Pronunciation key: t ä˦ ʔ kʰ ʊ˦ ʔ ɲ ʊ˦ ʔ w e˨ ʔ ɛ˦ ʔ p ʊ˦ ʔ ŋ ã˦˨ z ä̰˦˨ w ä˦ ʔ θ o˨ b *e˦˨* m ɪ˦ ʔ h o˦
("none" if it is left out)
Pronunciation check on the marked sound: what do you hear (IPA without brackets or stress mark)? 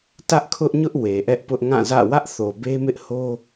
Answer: e˦